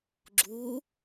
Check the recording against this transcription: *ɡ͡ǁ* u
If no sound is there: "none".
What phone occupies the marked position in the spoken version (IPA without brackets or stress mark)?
ɡ͡ǁ